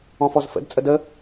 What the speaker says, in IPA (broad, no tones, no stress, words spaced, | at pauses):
ɔ̃fɔzfə̰d t͡sʼədə